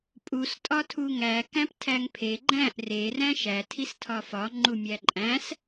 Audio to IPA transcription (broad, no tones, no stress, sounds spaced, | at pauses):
pʼ u s tʼ ɒ tʰ u ŋ æ k æ̃ p tʰ æ ŋ pʰ e ɡ͡ǃ æ̃ ʔ r e r æ̃ ʃ æ tʰ i s tʰ ɒ f ɒ ŋ͡ǃ u mʲ æ ǃʼ æ̃ s